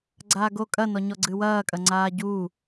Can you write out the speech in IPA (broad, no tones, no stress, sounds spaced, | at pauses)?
ɡ͡ǀ aː ɡ o kʼ ɐ n ɔ ɲ ɔ ɡ͡ǀ ɨ w ɐː kʼ ɐ ŋ͡ǀ aː ɟ uː